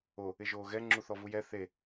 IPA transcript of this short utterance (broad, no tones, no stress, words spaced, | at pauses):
o | ɪʒoːɣɛ ŋ͡ǁuθɔvujɛ θe